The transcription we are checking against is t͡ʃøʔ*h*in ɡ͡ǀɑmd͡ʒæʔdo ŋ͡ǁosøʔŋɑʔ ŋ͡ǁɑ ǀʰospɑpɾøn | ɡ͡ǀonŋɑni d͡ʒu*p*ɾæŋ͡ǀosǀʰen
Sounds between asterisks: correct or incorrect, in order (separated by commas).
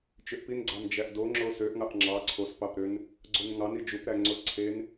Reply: incorrect, correct